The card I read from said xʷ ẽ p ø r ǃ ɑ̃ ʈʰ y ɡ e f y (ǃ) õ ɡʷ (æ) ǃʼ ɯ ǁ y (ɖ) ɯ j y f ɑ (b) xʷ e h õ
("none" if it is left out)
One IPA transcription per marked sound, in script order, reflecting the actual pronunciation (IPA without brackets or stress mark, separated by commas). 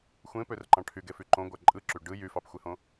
ǃ, æ, ɖ, p